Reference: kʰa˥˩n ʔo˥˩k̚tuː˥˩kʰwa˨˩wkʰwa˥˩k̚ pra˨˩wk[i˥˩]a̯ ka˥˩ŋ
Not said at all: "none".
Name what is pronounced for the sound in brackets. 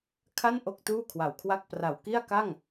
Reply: i˥˩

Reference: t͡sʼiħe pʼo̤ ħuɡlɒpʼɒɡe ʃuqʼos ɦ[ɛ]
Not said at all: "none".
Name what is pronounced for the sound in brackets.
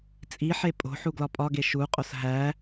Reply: æ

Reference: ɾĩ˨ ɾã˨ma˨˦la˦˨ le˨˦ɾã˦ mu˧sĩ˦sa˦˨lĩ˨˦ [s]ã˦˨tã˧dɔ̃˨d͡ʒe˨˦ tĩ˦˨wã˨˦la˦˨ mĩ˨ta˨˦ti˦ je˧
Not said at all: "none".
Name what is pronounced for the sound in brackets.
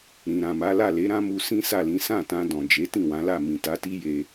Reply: s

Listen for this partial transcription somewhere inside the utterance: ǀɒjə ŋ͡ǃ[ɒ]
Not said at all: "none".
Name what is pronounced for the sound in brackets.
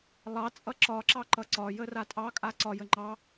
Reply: ɑ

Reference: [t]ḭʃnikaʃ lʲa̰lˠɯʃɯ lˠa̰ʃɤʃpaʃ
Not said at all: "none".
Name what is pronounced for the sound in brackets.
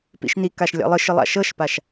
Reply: p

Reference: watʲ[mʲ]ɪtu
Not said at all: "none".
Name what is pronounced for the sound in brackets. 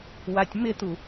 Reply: m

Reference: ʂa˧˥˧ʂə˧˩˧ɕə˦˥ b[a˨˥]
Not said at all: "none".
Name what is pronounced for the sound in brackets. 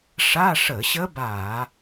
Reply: a˧˩˧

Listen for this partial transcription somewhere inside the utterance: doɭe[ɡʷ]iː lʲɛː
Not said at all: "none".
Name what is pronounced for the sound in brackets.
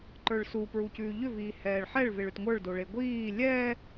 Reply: ɡʷ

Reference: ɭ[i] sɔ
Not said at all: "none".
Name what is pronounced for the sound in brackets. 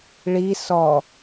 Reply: i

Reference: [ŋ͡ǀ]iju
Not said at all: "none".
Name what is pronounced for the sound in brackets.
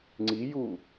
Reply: ŋ͡ǀ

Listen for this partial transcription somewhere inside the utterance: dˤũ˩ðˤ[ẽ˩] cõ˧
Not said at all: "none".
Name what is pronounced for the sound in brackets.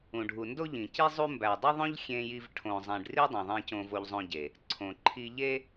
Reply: ẽ˧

